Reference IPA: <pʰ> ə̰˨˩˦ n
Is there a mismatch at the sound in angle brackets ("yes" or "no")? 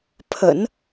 no